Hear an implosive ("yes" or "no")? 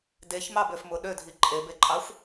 yes